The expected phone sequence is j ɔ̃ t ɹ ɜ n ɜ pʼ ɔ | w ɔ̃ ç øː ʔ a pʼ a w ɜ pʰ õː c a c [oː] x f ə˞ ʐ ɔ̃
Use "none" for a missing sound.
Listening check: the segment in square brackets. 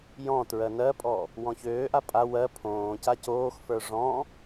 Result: oː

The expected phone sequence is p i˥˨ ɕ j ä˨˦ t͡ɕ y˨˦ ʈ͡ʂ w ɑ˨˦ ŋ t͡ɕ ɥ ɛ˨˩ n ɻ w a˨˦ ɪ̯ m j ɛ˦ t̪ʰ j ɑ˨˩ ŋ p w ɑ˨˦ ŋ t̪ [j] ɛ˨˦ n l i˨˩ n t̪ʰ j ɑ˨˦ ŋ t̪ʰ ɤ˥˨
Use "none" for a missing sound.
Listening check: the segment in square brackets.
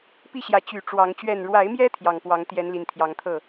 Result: j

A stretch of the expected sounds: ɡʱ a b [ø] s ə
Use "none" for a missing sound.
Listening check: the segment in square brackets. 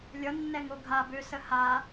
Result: ø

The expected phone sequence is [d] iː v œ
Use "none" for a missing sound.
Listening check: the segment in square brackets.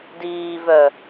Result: d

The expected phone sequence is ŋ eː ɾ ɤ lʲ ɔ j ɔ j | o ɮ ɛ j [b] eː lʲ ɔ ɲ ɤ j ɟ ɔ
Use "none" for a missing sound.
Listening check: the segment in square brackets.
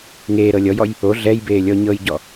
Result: b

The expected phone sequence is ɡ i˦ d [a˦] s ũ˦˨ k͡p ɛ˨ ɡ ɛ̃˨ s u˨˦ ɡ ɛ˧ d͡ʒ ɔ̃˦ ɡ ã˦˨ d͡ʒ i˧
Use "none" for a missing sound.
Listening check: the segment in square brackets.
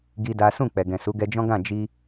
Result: a˦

